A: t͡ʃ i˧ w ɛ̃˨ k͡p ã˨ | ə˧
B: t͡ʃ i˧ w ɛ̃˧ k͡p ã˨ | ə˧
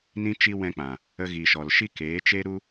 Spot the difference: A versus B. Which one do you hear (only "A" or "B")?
B